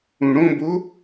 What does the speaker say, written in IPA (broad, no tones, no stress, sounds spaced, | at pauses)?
ũ ɽ õ b o